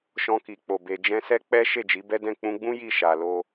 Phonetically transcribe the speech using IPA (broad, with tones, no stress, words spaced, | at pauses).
ʃɔ̃˧ki˨k͡po˨ be˨d͡ʒɛ̃˧sɛ˦ k͡pɛ˦ ʃe˦˨d͡ʒi˨˦bɛ˦dɛ̃˦˨ k͡pũ˧ɡ͡bũ˦ ji˦˨ʃa˨lo˧